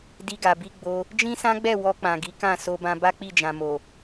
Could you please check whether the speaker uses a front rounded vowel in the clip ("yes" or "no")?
no